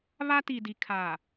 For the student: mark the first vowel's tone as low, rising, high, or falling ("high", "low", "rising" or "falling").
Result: high